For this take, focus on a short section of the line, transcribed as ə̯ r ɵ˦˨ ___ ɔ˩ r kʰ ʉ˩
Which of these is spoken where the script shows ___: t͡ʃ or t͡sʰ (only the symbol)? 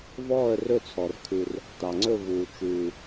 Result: t͡sʰ